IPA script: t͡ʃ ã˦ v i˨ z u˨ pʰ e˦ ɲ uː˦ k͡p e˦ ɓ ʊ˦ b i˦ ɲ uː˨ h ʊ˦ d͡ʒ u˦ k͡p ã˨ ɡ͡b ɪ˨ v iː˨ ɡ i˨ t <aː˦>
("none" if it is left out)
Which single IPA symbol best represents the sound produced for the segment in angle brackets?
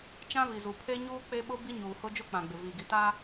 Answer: aː˦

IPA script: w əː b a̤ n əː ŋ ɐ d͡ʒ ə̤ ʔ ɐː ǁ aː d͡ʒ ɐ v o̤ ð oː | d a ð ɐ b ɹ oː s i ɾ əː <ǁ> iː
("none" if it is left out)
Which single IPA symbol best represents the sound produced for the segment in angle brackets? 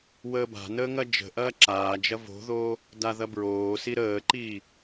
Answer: ǃ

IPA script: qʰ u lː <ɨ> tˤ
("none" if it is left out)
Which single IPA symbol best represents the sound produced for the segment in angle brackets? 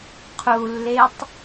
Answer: e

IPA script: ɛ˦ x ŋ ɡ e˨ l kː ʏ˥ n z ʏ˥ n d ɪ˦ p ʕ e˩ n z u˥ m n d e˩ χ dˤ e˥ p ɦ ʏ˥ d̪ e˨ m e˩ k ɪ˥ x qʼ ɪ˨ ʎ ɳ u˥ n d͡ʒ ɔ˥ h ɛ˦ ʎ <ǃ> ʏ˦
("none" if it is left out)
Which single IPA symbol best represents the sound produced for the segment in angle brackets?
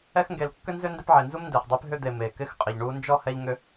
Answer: ŋ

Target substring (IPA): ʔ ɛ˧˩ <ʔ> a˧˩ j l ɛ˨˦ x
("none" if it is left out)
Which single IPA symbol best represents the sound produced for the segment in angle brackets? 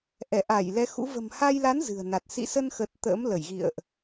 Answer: ʔ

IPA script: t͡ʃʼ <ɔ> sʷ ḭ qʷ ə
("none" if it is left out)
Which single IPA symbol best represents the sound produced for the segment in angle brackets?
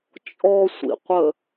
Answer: ɔ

